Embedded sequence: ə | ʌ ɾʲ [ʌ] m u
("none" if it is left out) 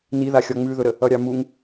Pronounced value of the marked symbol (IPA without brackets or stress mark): ɑ